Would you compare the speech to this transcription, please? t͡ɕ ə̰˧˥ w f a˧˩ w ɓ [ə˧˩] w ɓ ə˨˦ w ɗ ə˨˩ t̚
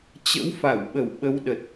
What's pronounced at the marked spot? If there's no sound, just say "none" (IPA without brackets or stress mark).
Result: ə˧˩